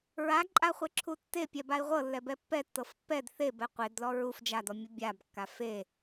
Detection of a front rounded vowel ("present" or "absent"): absent